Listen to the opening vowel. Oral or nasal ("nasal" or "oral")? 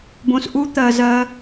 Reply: nasal